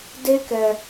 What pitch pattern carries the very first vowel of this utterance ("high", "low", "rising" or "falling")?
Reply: high